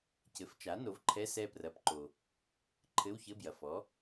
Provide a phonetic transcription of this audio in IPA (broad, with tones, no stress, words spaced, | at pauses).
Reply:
cɘ˩˥ft͡ʃa˩˥ no˩˥vǃʰɛ˧˥˧ sɛ˦˨prɐ˩˥pǃo˩ | ǃʰɘ˧˥˧wçɘ˧˥˧bjɐ˩fɔ˩˥